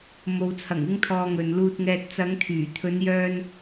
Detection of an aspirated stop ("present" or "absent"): present